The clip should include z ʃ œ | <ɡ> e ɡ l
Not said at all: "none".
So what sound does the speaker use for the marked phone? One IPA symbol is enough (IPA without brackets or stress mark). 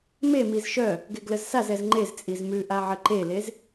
ɡ